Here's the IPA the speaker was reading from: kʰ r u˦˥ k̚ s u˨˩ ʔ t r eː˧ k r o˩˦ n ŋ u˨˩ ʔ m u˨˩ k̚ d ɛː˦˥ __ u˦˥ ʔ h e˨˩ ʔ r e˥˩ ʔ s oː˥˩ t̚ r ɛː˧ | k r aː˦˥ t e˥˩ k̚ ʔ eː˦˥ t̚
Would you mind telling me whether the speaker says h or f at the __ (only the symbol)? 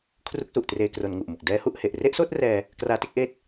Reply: h